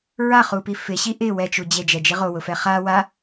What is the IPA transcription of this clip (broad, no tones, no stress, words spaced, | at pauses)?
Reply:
ɹaχupi fɪɕi ʔɪ wɛt͡ʃu d͡ʑed͡ʒɛd͡ʒi ʁowʊfɛ χa wa